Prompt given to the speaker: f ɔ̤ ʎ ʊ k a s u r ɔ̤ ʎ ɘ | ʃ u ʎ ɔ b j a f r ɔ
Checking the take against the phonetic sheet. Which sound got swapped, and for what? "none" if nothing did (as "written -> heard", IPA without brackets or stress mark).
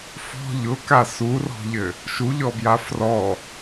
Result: none